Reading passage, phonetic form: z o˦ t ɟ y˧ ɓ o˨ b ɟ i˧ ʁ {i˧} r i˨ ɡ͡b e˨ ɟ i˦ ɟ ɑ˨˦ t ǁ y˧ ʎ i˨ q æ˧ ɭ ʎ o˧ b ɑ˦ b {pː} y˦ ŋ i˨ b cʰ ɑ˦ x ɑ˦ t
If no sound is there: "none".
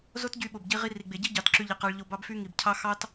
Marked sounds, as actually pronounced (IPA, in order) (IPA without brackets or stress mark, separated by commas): i˧, f